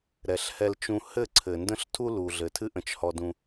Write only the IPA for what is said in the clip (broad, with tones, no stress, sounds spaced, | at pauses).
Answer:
ɾ ɛ˨ ɬ h ɛ˧ l t͡ʃ ũ˧ h ɘ˦˨ ǀʰ ɘ˨ n d ə̃˦ ɬ tʰ u˦ l u˨ ɮ ɘ˨ tʰ ɨ˦ ʔ ə̃˧ t͡ʃ h ɔ˧ d ũ˧